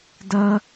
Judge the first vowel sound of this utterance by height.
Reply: low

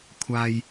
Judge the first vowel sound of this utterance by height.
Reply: low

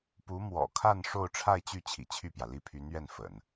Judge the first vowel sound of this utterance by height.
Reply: high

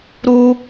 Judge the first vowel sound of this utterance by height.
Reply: high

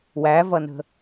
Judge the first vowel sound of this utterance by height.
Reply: low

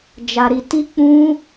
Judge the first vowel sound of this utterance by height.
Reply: low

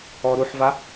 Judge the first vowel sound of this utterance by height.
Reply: mid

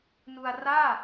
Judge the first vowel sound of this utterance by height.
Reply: high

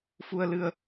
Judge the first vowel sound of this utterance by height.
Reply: high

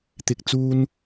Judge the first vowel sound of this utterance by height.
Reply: high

